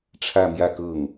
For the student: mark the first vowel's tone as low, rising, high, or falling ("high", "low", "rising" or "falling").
falling